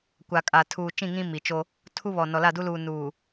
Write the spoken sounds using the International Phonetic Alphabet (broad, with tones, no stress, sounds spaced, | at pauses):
kʷ a˨ kʼ a˨ tʰ uː˨ t͡ʃ ĩ˦˨ ŋ ĩ˦ m i˨ t͡ʃ o˦ | tʰ u˦ β ɔ˨ n ɔ˨ l a˦˨ d u˦ l uː˨ n uː˨